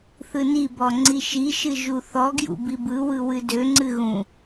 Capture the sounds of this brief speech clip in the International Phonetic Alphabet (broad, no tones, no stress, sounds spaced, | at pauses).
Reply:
θ ɯ n i b ɔ ŋ͡ǀ i ʃ i ʃ ɨ ʒ u θ ɔ ɡ j ṵ b i b ɯ w ɯ w ɨ d ø ŋ͡ǀ ɨ ɣ ũ